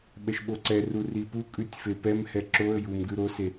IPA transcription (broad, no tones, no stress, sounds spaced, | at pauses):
ɓ ɛ ʃ ɓ o ǀ ɛ r u r i p u kʼ ʉ tʲ f e p ɛ m h ɛ ǁ o ə̯ j u m ɡ ʉ ɾ o s e